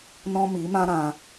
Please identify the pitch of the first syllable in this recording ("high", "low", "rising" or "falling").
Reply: high